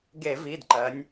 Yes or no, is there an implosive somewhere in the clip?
no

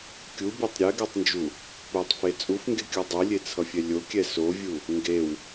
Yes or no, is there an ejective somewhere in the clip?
yes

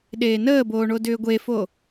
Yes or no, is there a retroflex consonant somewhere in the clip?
yes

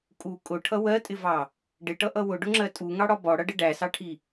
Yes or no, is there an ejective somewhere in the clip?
yes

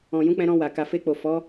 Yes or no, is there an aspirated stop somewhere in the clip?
no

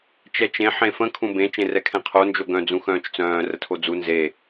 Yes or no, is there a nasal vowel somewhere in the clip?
yes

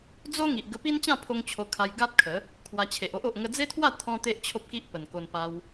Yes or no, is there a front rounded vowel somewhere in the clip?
no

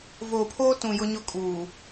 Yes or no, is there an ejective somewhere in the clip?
yes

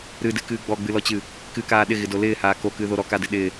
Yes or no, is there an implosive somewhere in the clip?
yes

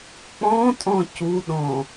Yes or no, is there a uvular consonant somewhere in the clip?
no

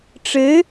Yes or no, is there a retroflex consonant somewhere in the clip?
yes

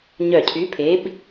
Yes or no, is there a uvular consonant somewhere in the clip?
no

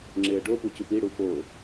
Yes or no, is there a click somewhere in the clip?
yes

